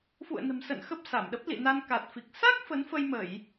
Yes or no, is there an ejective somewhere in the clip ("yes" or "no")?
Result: no